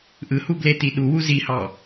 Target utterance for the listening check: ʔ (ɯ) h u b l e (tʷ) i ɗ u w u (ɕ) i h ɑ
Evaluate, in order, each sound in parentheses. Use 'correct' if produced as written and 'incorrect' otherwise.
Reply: correct, incorrect, incorrect

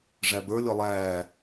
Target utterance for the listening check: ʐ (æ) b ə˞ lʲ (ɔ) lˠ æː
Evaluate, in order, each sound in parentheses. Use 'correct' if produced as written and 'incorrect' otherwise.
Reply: correct, correct

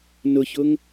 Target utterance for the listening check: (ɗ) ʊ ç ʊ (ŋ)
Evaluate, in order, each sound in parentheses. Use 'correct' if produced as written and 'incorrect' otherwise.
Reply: incorrect, correct

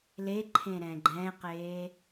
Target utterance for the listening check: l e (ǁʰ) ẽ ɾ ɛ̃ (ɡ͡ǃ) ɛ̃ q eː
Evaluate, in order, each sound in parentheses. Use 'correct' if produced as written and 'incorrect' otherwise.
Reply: incorrect, correct

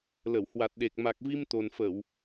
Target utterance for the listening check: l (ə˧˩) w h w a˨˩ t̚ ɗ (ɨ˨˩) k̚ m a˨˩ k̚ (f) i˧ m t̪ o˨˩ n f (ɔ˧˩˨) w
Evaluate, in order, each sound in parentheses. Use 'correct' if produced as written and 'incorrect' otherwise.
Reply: correct, incorrect, incorrect, incorrect

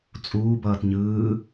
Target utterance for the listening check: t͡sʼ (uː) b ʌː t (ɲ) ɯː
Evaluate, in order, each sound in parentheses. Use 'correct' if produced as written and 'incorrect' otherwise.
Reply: correct, correct

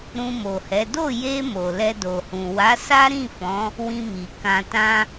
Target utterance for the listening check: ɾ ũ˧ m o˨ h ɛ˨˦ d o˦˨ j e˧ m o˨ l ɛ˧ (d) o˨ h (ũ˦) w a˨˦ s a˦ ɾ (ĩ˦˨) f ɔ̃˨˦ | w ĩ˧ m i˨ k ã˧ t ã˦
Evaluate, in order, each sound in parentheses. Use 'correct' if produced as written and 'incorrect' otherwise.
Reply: correct, incorrect, correct

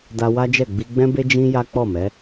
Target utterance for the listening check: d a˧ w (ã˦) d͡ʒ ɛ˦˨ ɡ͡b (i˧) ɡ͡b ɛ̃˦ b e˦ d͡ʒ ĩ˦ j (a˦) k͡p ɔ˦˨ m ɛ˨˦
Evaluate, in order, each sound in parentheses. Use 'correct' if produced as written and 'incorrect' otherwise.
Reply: incorrect, correct, correct

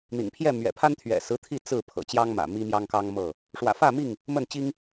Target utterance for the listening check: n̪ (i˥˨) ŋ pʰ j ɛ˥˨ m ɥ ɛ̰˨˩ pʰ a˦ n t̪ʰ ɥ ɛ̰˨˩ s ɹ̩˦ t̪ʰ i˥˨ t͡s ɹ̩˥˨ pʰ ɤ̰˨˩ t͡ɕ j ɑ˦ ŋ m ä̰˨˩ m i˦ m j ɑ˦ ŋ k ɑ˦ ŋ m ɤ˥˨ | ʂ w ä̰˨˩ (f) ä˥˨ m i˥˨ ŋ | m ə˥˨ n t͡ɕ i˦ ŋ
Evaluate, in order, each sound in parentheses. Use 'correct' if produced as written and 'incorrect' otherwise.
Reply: incorrect, correct

